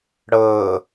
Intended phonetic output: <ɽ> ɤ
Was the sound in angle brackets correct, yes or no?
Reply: yes